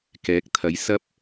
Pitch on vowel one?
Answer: rising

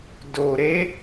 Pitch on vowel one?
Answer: low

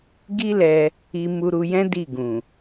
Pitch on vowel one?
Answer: high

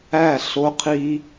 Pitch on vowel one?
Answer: falling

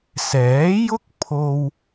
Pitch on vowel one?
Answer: rising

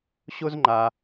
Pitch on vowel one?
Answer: high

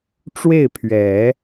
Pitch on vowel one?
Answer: falling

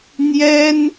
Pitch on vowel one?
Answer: high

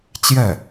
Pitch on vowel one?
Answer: falling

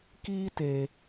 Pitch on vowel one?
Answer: high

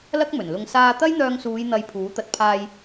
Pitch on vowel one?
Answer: high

